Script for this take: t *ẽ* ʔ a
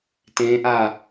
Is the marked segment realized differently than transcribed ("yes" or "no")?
no